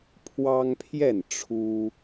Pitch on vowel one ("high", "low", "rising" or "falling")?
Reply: high